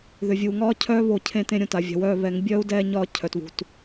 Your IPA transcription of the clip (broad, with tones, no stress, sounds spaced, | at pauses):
ð ʏ˨ vʲ uː˨ ŋ ɒː˦ cʰ œː˦ β o˨ cʰ ẽ˦ t ẽ˦ ɾʲ õ˨ t a˨ vʲ a̤˨ w œː˦˨ β ɛ˨˦ ŋ bʲ œː˦ u̯ d ɛː˦ ɲ ɒː˦˨ cʰ œ˨ t β ṳ˨ t